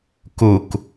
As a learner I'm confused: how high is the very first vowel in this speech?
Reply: high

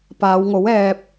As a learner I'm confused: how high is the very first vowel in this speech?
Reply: low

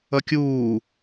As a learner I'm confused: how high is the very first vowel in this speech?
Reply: mid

